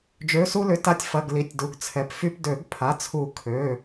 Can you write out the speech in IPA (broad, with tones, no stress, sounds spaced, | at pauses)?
d͡ʒ ø˩˧˩ s u˧ l ʏ˩˧˩ t a˧ tʲ f ɐ˩˧˩ ɡ l i˩˧˩ tʲ d u˩˧˩ ɡ t͡sʰ ɛ˩˧˩ p f y˧ p d ø˨˩˦ ɡ pʰ a˩˧˩ t͡sʰ u˨˩˦ kʰ ø˩˧˩